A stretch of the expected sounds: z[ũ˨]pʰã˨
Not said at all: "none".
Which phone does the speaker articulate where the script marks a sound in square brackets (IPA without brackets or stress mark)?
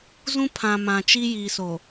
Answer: ũ˦